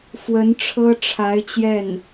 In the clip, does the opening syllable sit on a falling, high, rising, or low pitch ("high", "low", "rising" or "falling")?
rising